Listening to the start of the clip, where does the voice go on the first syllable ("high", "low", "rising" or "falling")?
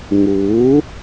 rising